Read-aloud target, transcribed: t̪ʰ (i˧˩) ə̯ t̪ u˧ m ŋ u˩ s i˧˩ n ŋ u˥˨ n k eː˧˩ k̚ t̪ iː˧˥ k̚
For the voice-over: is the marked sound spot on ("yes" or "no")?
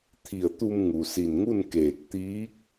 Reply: yes